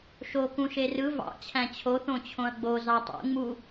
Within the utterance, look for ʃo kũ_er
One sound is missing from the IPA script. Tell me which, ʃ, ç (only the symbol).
ʃ